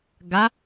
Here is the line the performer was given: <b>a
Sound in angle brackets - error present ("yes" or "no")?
yes